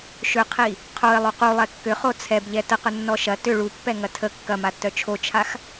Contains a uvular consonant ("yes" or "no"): yes